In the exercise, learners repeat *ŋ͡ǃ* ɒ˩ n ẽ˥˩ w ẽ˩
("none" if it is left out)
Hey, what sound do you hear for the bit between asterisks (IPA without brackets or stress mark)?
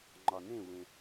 ŋ͡ǃ